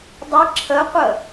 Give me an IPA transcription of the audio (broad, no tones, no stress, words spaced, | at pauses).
dˤə ǁʰəqʷə